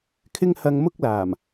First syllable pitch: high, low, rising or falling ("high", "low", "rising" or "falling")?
high